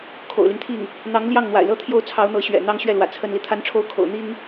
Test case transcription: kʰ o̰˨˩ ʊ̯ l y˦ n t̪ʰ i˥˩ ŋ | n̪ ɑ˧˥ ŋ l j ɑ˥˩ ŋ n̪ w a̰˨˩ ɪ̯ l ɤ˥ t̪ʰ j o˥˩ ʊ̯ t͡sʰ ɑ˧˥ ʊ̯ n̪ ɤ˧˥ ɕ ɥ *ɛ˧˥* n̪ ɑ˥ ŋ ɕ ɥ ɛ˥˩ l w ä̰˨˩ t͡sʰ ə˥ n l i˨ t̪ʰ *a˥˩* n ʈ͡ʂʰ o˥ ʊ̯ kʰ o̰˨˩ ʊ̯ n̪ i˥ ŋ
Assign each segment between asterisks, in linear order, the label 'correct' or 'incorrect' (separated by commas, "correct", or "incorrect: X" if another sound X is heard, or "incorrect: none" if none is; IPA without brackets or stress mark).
incorrect: ɛ̰˨˩, incorrect: a˥